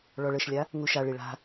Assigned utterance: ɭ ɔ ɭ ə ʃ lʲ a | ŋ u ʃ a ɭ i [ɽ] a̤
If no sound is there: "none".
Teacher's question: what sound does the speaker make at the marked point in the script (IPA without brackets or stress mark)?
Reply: ɭ